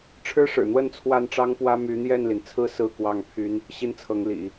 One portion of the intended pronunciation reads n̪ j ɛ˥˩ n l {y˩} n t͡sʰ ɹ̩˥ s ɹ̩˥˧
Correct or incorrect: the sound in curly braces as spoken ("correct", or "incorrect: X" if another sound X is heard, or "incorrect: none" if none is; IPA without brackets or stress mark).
incorrect: i˩